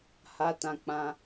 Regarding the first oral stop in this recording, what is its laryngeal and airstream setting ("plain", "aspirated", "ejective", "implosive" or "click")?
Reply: plain